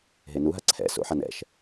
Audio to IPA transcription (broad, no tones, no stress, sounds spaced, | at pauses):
ɦ e n u ɦ a ǀʰ ɛ̰ s o̰ ħ a n ɛ̰ ʃ